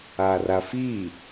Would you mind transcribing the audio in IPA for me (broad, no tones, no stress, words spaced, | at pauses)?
arafi